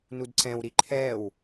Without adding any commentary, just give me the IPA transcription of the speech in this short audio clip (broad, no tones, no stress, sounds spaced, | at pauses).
n u d ǀ ɛ̃ w ɾ i ǃʰ ɛ w